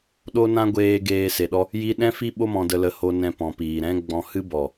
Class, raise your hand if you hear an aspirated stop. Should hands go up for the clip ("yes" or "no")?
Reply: no